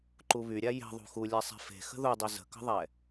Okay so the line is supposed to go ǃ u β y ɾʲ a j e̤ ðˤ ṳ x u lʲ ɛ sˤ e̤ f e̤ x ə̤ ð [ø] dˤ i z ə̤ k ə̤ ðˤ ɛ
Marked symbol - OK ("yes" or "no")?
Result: no